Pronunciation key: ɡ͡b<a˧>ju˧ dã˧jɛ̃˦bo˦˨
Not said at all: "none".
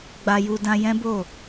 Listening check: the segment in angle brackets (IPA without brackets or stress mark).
a˧